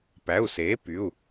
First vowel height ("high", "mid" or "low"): low